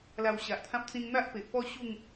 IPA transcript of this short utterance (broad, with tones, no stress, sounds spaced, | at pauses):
l a˨˩ w ɕ a˨ ʔ t̪ʰ ã˦ p̚ t͡s ĩ˧ ŋ n̪ a˦ ʔ p e˨ ʔ p ɔ˥˧ ɕ u˥˧ ŋ